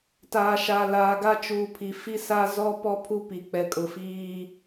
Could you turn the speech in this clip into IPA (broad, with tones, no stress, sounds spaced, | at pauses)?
t aː˨ ʃ a˨ l aː˨ ɡ a˦ t͡ʃ uː˨ pʰ i˨ f i˦ s a˦ z ɔ˦ p ɔ˦ pʰ u˦ p i˨ k͡p ɛ˨ kʼ ʊ˨ f iː˦